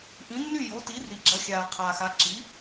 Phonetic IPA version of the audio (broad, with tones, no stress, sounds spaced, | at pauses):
ʔ ĩ˩˥ nː y˥˩ j o˩˥ t i˩˥ r i˩ ɡ͡ǁ ɐ˩˥ xʲ aː˩ qʰ aː˩ x a˩˥ ǁ i˩˥